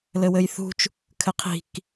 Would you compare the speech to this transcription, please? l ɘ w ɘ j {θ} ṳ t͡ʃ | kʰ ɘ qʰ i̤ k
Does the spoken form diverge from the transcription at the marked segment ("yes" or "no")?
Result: no